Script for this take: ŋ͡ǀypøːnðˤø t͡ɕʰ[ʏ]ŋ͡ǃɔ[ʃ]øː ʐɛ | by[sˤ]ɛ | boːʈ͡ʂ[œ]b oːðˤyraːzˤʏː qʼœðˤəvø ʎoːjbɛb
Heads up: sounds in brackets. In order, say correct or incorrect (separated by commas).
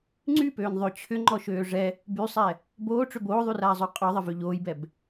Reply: correct, correct, correct, incorrect